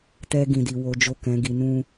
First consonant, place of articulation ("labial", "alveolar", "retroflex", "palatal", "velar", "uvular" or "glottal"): alveolar